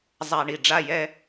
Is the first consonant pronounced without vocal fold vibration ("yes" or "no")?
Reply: no